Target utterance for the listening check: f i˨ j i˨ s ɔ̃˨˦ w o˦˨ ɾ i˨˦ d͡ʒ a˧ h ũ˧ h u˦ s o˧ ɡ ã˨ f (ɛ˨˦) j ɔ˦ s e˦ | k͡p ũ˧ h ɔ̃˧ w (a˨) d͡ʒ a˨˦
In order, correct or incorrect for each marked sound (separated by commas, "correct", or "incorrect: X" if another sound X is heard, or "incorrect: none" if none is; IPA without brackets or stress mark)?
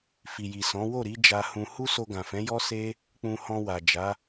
incorrect: ɛ̃˨˦, correct